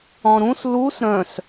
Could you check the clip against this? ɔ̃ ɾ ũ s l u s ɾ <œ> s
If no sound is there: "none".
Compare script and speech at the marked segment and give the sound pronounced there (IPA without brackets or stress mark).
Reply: œ̃